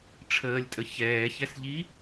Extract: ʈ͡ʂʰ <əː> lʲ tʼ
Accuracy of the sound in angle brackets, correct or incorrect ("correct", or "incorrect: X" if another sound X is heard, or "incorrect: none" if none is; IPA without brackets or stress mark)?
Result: correct